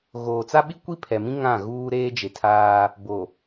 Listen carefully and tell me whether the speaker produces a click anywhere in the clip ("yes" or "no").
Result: no